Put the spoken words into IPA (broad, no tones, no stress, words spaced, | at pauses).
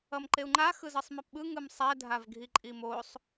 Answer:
ʌmǃeu̯ŋ͡ǃa xɯzɯsˤmɛpɓɯ ŋɯmsˤɛ dʱavɡʱiǃʼimosˤ